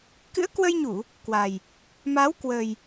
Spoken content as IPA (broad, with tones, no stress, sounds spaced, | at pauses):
k ɨ̰˧˥ ə̯ k w ə˧ j ɲ u˧˩˨ | k w a˨˩ j | m a˨˦ w k w ə˨˩ j